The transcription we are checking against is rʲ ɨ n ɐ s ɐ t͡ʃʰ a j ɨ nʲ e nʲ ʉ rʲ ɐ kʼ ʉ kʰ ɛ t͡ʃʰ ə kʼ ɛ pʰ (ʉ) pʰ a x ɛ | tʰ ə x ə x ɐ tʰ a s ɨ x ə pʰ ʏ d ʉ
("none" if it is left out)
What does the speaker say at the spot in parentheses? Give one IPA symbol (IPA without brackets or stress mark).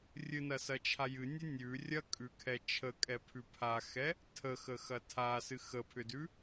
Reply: ʉ